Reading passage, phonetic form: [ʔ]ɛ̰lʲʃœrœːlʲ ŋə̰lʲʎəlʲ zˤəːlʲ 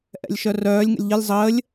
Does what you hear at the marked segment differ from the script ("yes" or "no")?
no